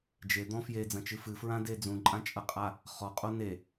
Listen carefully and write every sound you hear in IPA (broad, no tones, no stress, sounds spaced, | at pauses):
d͡ʒ e d̪ ɔ̃ f j e d͡z ɐ̃ t͡ʃ ɨ f ɨ f ɹ ã d e d͡z ũ ǃʼ ã t͡ʃʼ ɐ qʼ a | χ ɔ qʼ o n e